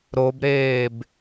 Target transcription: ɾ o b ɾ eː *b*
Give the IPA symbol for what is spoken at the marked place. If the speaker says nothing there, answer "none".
b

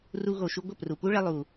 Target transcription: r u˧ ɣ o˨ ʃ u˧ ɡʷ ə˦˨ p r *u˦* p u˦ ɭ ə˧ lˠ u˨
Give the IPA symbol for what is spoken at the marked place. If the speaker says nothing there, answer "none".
u˨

